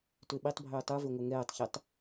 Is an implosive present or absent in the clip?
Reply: present